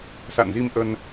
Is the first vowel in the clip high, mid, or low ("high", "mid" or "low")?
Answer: low